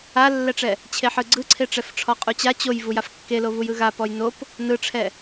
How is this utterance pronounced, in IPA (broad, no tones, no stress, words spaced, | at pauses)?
alːɛʈ͡ʂɛ | t͡ɕʰeħɯɡ͡ǀɯǀʰe ʈ͡ʂɛfʈ͡ʂʰɔqʼut͡ɕa t͡ɕoj vujafkːelo vujɯɣa pɔjnop | nɯʈ͡ʂʰɛ